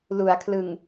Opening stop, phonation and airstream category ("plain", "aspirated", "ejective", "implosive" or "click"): aspirated